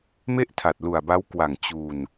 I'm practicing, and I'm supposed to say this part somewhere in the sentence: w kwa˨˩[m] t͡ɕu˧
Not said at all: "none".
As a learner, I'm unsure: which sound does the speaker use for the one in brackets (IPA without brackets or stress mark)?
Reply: ŋ